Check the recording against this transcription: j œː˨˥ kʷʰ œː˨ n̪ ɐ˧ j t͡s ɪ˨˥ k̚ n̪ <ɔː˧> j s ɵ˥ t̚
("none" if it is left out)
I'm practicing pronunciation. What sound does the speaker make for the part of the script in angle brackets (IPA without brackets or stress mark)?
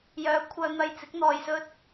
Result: ɔː˧